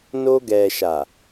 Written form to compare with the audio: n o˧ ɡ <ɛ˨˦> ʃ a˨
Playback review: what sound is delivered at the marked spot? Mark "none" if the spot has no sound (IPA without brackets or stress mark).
ɛ˨